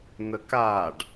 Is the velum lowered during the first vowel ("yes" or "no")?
no